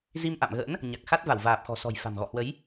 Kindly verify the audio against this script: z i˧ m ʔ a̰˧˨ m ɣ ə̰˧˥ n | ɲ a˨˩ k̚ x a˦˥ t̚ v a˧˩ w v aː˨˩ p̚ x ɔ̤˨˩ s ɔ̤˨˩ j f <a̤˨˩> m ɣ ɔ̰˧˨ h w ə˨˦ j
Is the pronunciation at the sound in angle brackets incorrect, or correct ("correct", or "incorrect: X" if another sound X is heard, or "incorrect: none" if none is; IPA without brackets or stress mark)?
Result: correct